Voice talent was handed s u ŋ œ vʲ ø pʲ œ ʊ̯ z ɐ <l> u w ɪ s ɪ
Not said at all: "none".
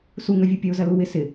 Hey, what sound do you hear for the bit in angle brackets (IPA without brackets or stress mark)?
l